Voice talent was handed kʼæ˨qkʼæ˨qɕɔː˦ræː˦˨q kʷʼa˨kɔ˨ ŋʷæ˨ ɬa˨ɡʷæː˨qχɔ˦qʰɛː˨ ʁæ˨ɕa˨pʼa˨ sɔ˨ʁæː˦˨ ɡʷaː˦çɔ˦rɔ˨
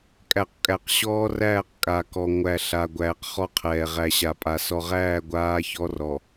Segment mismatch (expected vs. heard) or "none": kʷʼ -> kʼ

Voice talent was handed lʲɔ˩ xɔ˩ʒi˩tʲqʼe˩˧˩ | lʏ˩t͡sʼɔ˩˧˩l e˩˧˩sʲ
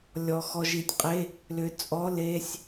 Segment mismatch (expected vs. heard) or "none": none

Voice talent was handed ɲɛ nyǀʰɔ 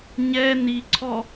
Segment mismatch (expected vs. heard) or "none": y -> i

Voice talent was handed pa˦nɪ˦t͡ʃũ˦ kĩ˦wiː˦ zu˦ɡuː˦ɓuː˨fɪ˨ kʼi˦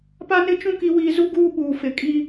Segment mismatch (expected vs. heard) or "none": ĩ˦ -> i˦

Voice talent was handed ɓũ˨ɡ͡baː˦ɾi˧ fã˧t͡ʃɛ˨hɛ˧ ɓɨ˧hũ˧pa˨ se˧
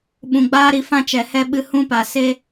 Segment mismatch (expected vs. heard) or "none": none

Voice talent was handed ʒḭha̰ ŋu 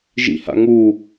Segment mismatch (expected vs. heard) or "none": none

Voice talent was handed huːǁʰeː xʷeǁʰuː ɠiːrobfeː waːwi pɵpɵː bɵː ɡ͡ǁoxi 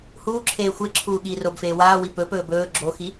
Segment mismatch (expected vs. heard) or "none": none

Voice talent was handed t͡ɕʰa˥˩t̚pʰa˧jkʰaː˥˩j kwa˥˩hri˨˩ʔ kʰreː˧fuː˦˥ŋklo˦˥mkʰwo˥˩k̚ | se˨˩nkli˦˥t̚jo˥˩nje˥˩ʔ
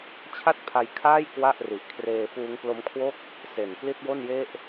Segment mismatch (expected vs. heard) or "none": h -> ʔ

